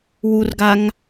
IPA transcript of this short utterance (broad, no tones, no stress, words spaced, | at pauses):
wurɡaŋ